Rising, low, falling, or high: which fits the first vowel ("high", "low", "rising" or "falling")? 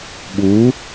rising